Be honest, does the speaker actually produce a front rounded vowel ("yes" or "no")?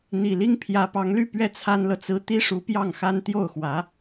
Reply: yes